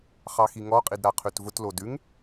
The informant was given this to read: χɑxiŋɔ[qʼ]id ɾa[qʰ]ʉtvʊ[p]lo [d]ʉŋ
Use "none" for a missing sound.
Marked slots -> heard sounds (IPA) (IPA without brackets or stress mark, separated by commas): qʼ, qʰ, t, d